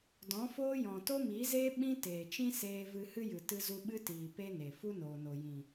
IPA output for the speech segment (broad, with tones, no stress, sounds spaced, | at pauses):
d ɔ̃˨˦ f oː˦ j ɔ̃˨ t o˦ m iː˨˦ z eː˦ ɓ ĩ˦ t eː˨ t͡ʃ ĩ˦ s eː˧ v ɨ˧ h ɨ˦ j ɨ˨ t ɨ˧ z u˧ ɓ ɨ˦ t iː˨ p e˦ n e˨ f u˦ n oː˨ n o˨ j ĩ˨